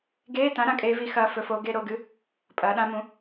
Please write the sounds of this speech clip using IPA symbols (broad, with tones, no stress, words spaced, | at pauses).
ɡeː˧˥˧tã˨˥ ɾã˨˥kʼeː˦˥vi˨˥ xɐː˦˥ fɵ˨˥foː˨˥ ɡe˧˥˧ɾo˧˥˧ɡɨ˦˥ | pʼɐː˨˥ɗã˦˥mũ˨˥